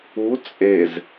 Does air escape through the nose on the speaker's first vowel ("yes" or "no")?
no